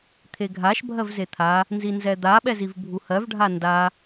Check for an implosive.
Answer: present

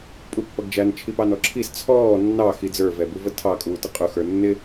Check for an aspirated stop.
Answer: present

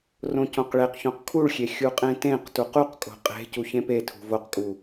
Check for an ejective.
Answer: present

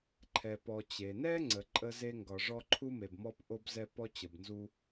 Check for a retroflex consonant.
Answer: present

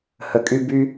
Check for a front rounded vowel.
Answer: present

